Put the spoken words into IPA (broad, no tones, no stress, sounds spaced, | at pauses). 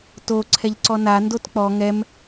t o ǀʰ ɛ ʎ ǀ ɔ n a n d o t k͡p ɔ ŋ ɛ m